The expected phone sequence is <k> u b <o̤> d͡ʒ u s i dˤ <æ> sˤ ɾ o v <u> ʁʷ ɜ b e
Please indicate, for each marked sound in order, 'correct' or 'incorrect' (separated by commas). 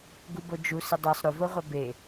incorrect, incorrect, incorrect, incorrect